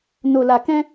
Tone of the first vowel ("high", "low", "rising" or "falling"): low